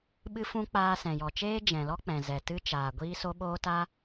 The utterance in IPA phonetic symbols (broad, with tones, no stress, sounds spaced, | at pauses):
ɓ ɨ˦ f ũ˦ k͡p aː˧ s ɛ̃˨ j ɔ˨ t͡ʃ eː˦ d͡ʒ ɛ̃˨ l ɔ˦ k͡p ɛ̃˨ z ɛ˨ t ɨ˦ t͡ʃ aː˨ ɡʷ iː˦ s o˦ ɓ oː˦ t a˦